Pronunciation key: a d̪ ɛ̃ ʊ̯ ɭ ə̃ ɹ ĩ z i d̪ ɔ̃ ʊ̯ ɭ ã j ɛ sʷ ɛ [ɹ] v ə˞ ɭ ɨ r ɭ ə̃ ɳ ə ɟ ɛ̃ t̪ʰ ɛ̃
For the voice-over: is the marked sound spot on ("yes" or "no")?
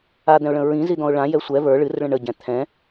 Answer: no